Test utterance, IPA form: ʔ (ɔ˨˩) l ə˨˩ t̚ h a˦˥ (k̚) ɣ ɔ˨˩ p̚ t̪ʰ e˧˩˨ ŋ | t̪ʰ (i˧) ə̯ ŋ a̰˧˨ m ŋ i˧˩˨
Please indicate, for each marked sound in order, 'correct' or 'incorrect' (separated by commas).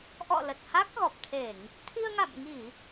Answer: incorrect, correct, correct